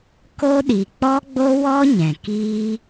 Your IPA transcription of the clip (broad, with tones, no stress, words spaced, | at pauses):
ko˦ɗi˨ k͡pɔ˦ɡ͡bo˦wɔ˦ ɲɛ̃˨ kiː˦